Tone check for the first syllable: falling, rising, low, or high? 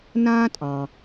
high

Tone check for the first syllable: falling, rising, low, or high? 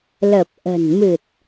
low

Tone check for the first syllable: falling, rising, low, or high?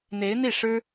rising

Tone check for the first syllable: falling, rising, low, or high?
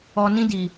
low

